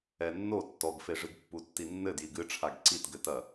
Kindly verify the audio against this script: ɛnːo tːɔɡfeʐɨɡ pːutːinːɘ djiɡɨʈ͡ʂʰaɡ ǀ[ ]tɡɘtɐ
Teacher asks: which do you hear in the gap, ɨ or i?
i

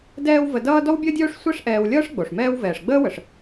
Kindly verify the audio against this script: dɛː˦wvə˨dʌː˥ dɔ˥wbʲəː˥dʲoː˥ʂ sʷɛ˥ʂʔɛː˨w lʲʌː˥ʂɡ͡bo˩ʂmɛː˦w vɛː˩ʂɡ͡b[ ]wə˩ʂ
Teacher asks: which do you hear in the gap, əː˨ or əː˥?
əː˥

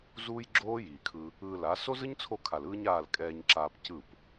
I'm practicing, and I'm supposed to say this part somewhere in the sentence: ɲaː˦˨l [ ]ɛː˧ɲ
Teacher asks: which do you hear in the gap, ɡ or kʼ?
kʼ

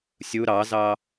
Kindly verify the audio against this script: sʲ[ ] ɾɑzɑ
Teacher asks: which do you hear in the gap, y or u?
u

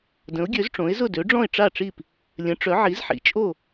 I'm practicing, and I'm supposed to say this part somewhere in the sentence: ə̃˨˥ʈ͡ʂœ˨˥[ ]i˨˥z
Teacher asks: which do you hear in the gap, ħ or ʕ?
ʕ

